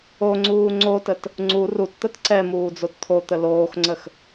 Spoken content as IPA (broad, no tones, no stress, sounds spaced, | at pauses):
o ŋ͡ǀ uː ŋ͡ǀ o t ə t | ŋ͡ǀ u r u t t̪ ə t ǀ ɛ m uː d͡z o t t̪ʰ o t̪ ə l oː x ŋ͡ǀ ə x